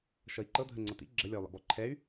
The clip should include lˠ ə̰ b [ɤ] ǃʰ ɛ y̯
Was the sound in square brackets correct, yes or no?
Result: no